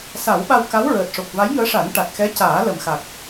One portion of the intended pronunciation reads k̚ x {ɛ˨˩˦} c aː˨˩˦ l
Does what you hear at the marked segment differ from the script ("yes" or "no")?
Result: yes